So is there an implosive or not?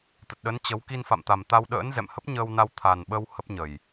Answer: yes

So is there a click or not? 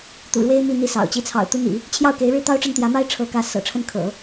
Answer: no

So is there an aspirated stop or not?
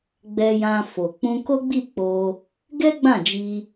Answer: no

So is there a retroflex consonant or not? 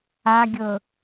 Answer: no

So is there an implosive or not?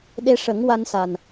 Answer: yes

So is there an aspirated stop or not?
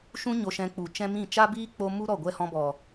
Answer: no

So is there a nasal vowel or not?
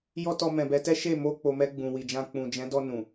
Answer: yes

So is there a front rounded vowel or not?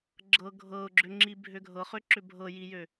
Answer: yes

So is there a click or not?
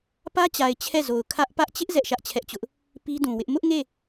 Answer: no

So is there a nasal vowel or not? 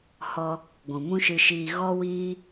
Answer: yes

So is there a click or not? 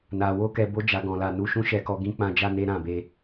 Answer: no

